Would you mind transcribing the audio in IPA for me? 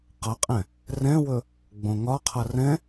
q ʌ qʼ ɛ̃ | r ɛ̃ w ɵ | ɡ͡b õ ŋ ɒ qʰ ʌ r ɛ̃

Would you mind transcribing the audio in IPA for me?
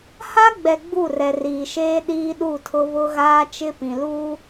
h a˦ ɡ͡b ɛ˨ ɡ͡b u˦˨ r ɛ˨ r iː˨ ʃ eː˦ ɗ iː˦ ɗ u˦˨ tʰ ʊ˦ β ʊ˦ ɣ aː˦ t͡ʃ ɪ˦ p ĩ˨ l u˦

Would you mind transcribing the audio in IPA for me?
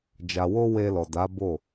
d͡ʒ a˨ w o˧ w e˧ l ɔ˨ d a˨˦ b o˦˨

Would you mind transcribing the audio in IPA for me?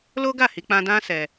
l o˦ ɡ a˦˨ h i˧ k͡p ã˧ d ã˦ s ɛ˧

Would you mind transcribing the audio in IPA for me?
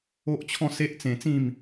o˦ ʔ t͡ɕʰ ɔ̃˥˧ s e˦ ʔ t͡s ẽ˧ t͡s ĩ˥˧ m

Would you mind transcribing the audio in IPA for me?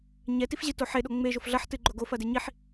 ɲ ɛ t i f ʑ ɨ t o ħ e ɗ o ŋ͡m e ʒ o f ɮ ɐ ħ t ɨ ɡ͡ǃ o ɡ o f ɐ d e ɲ i ħ

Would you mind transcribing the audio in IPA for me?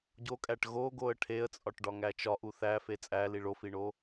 ɟ o kʼ æ ʈ ɣ o ɡ o ə̯ ʈʰ e ə̯ t͡sʼ ɒ ʈ ɖ ɒ ŋ æ t͡ʃ ɒ ʔ u θ æ f e t͡sʼ æ l i ɭ o f i ɳ o

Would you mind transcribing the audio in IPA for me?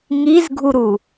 ŋ i z ɡʱ u ɾ u

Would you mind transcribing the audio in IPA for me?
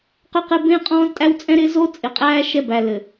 q ø˦ q ɪː˦ b ẽ˦ qʼ ɔ̃ː˦ z tʼ æ˦ w t͡sʼ ɛ̃˦ ɾ ɪː˦ z o˦ t͡sʼ ɪ˨ qʼ æː˦ ʃ ɛ˦ b æ˨ l ɘ˨

